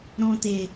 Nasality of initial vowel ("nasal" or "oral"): nasal